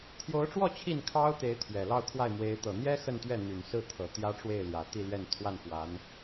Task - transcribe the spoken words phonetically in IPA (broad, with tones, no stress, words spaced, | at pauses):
t̪ʰjo˧˥ʊ̯ʈ͡ʂwɔ˥˧ t͡ɕʰi˥˩nkʰɑ˥ʊ̯t̪e˧˥ɪ̯ t̪ʰɥɛ˨˩lɑ˥˧ʊ̯kʰwa˥˩ɪ̯mwe˧˥ɪ̯ t̪ɤ˨˩n̪jɛ˥ xə˥˧nt̪ɥɛ˥˩ n̪y˨˩nsɹ̩˥˩t̪ʰɤ˨˩ t̪jä˥ʈ͡ʂwe˥˩ɪ̯ljä˨˩ t̪i˥˧lɥɛ˥˧n t̪ʰwa˥˩nfwa˧˥n